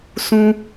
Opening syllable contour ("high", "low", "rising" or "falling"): high